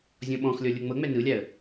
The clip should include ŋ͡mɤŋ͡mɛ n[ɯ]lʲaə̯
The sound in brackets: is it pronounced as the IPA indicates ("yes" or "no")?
yes